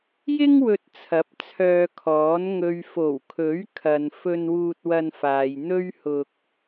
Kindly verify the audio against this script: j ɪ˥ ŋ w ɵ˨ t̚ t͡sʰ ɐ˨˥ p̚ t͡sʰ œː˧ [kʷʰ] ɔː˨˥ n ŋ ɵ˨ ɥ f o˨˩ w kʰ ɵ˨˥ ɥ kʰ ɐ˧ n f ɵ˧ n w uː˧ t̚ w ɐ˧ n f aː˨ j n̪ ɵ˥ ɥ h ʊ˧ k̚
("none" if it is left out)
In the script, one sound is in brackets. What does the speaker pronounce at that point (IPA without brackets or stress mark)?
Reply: kʰ